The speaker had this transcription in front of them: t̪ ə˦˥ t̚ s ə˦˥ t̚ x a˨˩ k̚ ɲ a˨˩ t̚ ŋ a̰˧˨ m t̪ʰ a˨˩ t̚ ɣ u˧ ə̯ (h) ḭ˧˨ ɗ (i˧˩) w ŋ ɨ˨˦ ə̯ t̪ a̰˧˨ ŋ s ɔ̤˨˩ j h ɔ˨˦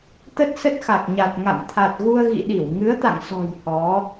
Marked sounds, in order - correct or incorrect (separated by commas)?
incorrect, correct